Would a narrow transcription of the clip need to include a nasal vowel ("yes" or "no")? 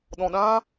yes